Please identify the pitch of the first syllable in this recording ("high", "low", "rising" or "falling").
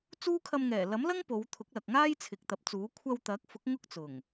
high